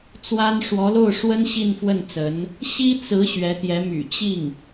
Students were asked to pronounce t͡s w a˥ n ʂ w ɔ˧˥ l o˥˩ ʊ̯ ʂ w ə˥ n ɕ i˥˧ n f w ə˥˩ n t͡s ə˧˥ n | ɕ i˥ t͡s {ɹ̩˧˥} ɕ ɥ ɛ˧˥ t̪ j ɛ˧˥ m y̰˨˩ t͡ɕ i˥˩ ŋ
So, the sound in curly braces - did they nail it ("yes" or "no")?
yes